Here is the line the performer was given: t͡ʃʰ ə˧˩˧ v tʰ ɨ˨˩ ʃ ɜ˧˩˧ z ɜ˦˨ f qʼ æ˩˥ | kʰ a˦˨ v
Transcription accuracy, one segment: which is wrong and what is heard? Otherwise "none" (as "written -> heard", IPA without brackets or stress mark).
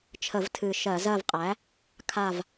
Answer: f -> v